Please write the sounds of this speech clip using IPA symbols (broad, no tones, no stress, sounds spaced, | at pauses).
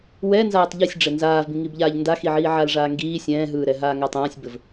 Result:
w ɛ n z aː tˤ ʎ i sʲ ɖ͡ʐ ɘ n z aː v b ĩ ŋ i b ʎ aː ʎ n d a x i ʕ iː ʕ a l ʐ aː ŋ ɡ iː sʲ ɛ̃ː ɦ ɯː ɾ ɛ ɦ aː ŋ a tˤ ãː sʲ b ɘ v